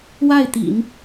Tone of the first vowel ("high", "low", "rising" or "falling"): falling